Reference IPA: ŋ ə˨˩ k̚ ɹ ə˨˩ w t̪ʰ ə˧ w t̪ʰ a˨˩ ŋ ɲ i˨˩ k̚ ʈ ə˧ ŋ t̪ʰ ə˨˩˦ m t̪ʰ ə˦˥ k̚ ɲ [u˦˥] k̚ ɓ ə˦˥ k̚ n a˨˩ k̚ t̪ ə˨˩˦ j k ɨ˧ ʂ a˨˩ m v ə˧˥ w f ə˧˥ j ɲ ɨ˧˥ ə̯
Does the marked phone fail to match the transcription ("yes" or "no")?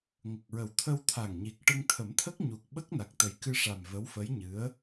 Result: yes